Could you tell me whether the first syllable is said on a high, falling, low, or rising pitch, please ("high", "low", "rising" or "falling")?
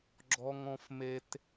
high